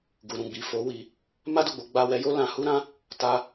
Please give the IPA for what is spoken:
ɡ u˨ ɾ ũ˨ ɡ͡b i˨ f o˨˦ w i˧ | m a˦ d o˦˨ ɡ͡b o˧ ɡ͡b a˧ w ɛ˧ j o˦ l ã˧ h u˦ ɾ ã˦ | t a˦

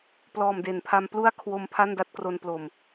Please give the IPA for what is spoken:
p l ɔː˨˩ m d e˩˦ n pʰ a˧ m p l u˥˩ a̯ kʰ w o˦˥ m pʰ a˥˩ n d a˥˩ t̚ k r o˧ n p l o˨˩ m

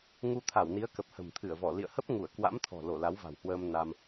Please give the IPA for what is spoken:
ŋ u˧ t̪ʰ a˧˩ w n i˨˦ ə̯ k ə˨˩ p̚ h ə̤˨˩ m t̪ʰ ɨ˧˩ ə̯ v ɔ˧˩ l ḭ˧˨ ə̯ h ə˦˥ p̚ ŋ u˧˩ ə̯ k w a̰˧˥ m t̪ʰ ɔ̤˨˩ l o˧˩ l a˨˦ w v a̤˨˩ w h w əː˧ m n a˧ m

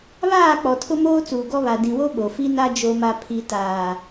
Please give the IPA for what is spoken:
β aː˦˨ k͡p ɔ˨ tʰ ʊ˦ m oː˦ t͡s uː˨ ɡ ɔ˦ β a˨ d ĩ˨ w o˦ ɓ o˨ f i˦ n a˦ d͡ʒ o˨ m a˨ pʰ i˨ t aː˨

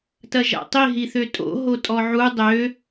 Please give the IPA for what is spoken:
t ɐ ʒ a̰ tˤ i ɦ i θ ø tʼ o̰ ɦ o tʼ ɔ ʕ u dˤ ø

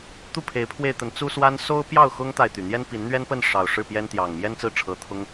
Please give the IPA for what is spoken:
t̪ u˥˨ pʰ e˨˦ ɪ̯ pʰ w e˧ ɪ̯ t̪ ə˨˦ n t͡s u˦ s w a˦ n s o˦ ʊ̯ p j ɑ˥˨ ʊ̯ x ʊ˦ ŋ t̪ a˨ ɪ̯ t̪ y˩ n̪ j ɛ˦ n p i˨˦ n n̪ ɥ ɛ˦ n p ə˥˨ n ʂ ɑ˨˩ ʊ̯ ʂ ɻ̩˥˨ p j ɛ˦ n t̪ j ɑ˨˩ ŋ m j ɛ˦ n t͡s ɹ̩˥˨ ʈ͡ʂʰ ɤ˨˦ t̪ʰ ʊ˦ ŋ

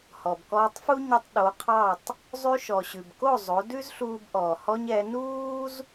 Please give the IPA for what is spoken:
h ɔ˩ b k ɔː˧ tˤ f u˥ ɲ ʉ˧ tˤ ɗ o˩˥ qʰ ɑ˥˩ tˤ | zˤ y˧ ʃ ɔ˩ ɕ ʉ˩ b k o˥˩ zˤ o˩˥ d ʉ˥ z ɬ uː˧ b ʔ ɔː˩ h ɔ˥ ɲ ɛ˩˥ n uː˥ z

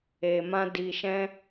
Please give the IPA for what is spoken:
e˧ m ã˦ d i˧ ʃ ɛ̃˦

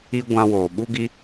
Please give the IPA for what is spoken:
i˧ ɡʷ ã˧ w oː˨ ɓ u˦ ɡ i˦

